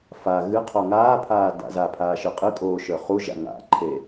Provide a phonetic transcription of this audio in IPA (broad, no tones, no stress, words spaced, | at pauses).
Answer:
fa ɣɨ qʰoŋaːpʰaː da̰zapʰaː ʃɨqʼɨkʼoː ʃə˞χuʒa̰ ŋa̰ǃʰe